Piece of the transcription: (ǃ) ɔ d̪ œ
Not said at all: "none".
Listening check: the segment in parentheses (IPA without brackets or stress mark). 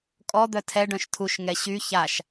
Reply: kʼ